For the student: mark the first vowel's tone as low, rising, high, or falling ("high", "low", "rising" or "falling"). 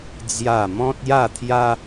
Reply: falling